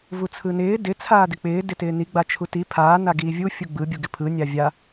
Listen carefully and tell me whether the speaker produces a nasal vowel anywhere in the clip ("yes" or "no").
no